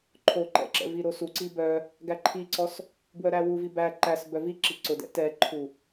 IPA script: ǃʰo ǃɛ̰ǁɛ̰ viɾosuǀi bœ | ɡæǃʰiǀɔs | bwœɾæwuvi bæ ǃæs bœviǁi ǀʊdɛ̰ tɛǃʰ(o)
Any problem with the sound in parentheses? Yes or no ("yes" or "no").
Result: yes